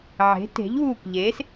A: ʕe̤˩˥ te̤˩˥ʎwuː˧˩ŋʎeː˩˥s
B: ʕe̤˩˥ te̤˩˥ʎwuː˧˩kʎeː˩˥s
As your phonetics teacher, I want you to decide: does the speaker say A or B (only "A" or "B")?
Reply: B